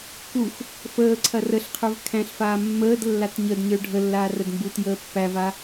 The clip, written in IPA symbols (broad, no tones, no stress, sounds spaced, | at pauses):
k u x | f əː ǀʰ ɐ r ə ɬ qʰ ə˞ v kʰ æ̃ ɬ f aː mː əː d lː a t ɲ ə d ɲ ə˞ ɖʱ ə lː aː r ə d m b u t j əː pː æ v a